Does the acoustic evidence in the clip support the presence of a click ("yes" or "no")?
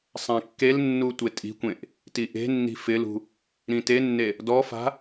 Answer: no